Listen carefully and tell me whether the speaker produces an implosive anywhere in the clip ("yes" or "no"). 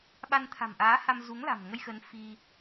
yes